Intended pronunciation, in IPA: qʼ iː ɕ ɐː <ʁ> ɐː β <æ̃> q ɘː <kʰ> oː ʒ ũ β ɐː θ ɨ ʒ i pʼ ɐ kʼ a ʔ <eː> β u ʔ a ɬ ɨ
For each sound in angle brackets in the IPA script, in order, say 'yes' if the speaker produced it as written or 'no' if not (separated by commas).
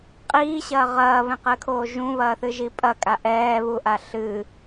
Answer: yes, no, yes, no